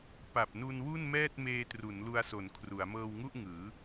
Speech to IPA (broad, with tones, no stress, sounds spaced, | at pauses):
p a˨˩ p̚ n u˧ n w u˥˩ n m ɛː˥˩ t̚ m eː˧ t r u˩˦ n l u˧ a̯ s o˨˩ n kʰ r u˩˦ a̯ m ɤː˧ w ŋ u˥˩ ʔ ŋ ɯː˩˦